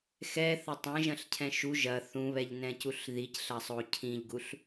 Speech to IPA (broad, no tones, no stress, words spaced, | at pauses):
xɛθɐ tˤɛ̃ʒɐ̃ɬcʰɛ̃ ʃu ʒɐ θũβɛʎnɛ̃cuɬ ðicɬɐsˤo cʰĩʎɡuɬ